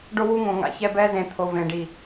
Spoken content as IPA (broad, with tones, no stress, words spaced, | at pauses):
ɖo˦wu˦ŋõ˨ŋa̰˨ çɛ˧bɛ˧zẽ˨ t̪ʰo˨vẽ˨ɖi˨